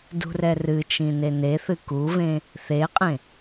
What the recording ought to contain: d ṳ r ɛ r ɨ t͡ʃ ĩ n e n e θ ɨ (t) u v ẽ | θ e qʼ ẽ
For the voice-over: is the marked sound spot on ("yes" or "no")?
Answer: no